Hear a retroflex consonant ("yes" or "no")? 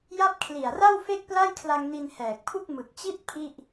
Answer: no